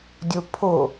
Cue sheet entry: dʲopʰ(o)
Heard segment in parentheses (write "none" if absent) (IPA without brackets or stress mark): o